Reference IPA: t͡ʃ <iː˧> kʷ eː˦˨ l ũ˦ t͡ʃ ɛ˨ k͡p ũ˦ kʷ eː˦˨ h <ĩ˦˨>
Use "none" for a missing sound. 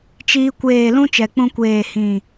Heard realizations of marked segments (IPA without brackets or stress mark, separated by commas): iː˧, ĩ˦˨